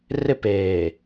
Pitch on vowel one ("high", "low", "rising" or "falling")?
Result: falling